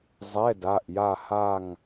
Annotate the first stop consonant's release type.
plain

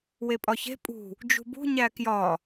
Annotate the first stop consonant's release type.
ejective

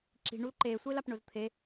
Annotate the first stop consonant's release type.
click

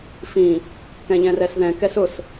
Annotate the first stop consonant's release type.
plain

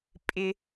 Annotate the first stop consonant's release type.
ejective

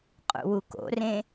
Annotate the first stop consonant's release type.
ejective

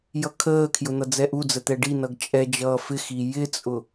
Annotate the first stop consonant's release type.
aspirated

